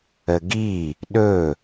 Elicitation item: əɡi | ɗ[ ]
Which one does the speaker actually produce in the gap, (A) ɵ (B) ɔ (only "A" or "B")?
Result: A